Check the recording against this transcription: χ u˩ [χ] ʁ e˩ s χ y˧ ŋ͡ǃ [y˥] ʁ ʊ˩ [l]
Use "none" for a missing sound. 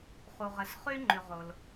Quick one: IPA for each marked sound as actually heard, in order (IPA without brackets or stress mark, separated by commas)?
none, y˩, l